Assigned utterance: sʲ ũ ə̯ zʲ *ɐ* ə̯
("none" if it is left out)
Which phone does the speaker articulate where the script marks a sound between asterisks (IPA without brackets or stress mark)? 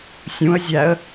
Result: æ